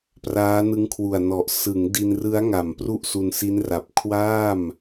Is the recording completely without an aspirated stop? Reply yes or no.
no